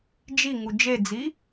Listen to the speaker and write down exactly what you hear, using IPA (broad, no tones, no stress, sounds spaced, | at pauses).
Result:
d͡ʒ i ŋ u d͡ʒ e d͡z i